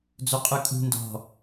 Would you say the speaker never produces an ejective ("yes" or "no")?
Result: no